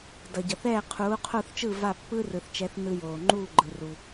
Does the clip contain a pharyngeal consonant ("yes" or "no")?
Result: no